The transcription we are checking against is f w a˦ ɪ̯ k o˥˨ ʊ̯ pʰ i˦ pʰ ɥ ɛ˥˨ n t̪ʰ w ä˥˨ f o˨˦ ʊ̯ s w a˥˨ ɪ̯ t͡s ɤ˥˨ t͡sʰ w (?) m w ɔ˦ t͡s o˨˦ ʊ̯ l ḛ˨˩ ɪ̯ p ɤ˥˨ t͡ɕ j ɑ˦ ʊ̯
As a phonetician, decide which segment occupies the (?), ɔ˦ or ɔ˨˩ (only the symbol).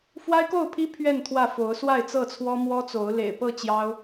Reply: ɔ˦